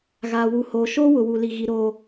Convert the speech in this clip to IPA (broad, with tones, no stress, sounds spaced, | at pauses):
ɣ aː˨ w u˨ h oː˨ ʃ oː˦ w ʊ˨ w u˨ l i˨ ɣ i˨ ɾ oː˨